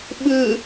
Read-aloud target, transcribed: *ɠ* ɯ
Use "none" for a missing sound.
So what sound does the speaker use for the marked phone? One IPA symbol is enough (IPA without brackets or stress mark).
ɓ